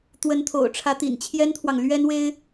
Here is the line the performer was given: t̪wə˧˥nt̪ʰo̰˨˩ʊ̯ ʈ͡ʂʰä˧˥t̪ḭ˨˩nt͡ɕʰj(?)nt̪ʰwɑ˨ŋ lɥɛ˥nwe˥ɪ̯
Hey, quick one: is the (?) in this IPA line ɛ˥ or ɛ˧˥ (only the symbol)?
ɛ˥